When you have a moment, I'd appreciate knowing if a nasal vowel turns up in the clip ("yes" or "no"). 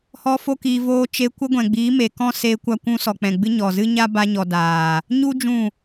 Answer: yes